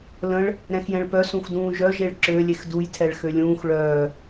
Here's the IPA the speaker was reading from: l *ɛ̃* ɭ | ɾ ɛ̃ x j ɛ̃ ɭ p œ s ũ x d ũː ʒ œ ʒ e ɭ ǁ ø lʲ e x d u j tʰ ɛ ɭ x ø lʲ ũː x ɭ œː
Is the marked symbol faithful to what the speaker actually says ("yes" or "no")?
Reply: no